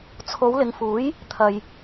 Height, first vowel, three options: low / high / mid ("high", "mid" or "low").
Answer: mid